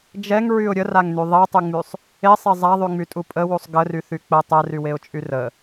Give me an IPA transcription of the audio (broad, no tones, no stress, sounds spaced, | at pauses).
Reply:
d͡ʒ ɛ ŋ ɹ y ʊ̯ ɾʲ ə r a ŋ n y ðˤ e tˤ y ŋ͡m y sˤ | e sˤ e zˤ a ðˤ y ŋ͡m y tʼ u pʼ ə w u sˤ ɡ ə r y θ y k͡p ə tˤ ɛ r y w e ʊ̯ t͡ʃʼ y r ə